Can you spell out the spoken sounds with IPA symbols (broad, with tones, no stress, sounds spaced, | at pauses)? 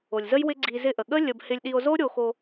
o˨ lʲ z ə˦ j w ɪ˦ ɡ͡ǀ i˧ z ɪ˧ ʔ ə˨ ɠ ə˦ lʲ ə˧ b h ɪ˧ lʲ ɗ i˧ o̯ z o˦ ɾʲ o˧ x o˧